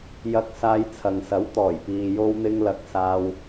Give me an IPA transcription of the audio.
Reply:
jɐ˧k̚ saː˧jt͡sʰɐ˨ŋsɐ˨˥w t̪ɔː˨˩jpiː˨ jo˧wn̪ɪ˧ŋlɐ˨˥k̚ saː˥w

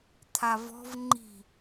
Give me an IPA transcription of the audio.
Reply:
t̪ʰavɔ̤v ŋ͡ǃi̤

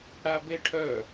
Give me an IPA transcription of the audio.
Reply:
ɽabeʈʰœ

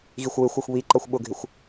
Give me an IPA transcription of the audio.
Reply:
ɣixʷwɪxʷɜxʷ βiǃʌxʷ ɓʊɡʱɪxʷ

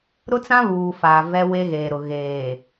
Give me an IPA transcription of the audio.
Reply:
ɾʊ˦t͡sã˦βuː˨ faː˨ vɛ˦we˦ɣeː˨ɾʊ˨ ɣeː˨

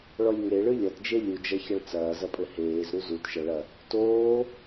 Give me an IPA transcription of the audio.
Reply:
ɭɔlʲŋeɭɨ lʲɐtd͡ʒe lʲud͡ʒɐçɐɭ t͡sɐːzɐpʼɘ heːz ɾuzut ʃɐɭɐ | toː

